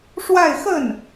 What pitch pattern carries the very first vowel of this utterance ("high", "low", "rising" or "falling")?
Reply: falling